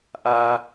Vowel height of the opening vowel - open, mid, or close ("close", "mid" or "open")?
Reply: open